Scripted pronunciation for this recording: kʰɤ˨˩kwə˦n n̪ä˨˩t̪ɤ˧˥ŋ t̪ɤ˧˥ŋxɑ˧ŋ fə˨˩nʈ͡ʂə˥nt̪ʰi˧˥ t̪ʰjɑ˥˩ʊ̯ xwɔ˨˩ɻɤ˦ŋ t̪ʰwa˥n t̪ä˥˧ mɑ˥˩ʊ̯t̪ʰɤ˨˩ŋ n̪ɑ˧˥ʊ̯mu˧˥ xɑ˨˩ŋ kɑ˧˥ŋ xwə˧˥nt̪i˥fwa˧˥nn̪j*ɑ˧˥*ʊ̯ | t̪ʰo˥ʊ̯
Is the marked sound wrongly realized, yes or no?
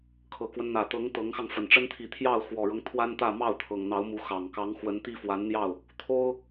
yes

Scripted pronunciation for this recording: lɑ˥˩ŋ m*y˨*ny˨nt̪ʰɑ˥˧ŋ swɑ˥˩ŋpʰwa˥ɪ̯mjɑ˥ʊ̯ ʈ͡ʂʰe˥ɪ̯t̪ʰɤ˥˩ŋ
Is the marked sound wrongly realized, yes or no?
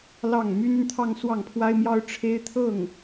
yes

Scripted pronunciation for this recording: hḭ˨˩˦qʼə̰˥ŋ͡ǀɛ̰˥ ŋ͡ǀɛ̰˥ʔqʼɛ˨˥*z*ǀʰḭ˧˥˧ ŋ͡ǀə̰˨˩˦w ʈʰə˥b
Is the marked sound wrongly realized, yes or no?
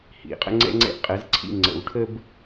no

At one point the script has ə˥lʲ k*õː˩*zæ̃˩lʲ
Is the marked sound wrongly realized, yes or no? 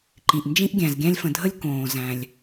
no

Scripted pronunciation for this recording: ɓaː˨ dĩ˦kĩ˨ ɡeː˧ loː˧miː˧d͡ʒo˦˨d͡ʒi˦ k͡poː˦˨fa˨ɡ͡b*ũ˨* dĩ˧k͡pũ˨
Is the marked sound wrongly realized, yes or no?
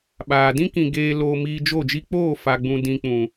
no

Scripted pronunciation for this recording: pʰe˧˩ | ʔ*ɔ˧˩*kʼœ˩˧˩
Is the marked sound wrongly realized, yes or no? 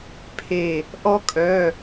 yes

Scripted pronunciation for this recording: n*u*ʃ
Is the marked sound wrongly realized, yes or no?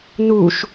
no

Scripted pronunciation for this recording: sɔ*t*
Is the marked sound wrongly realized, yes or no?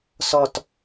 no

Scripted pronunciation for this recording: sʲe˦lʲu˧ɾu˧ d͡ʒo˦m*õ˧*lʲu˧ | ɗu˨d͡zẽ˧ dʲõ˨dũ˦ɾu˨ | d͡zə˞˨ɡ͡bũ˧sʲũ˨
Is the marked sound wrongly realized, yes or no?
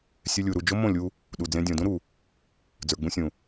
yes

